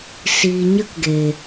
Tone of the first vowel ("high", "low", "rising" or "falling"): low